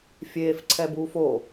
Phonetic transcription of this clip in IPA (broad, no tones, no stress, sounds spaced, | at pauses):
fʲ eː f ǀʰ ɛ b uː f o